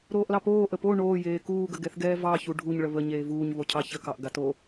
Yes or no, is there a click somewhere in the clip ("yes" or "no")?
no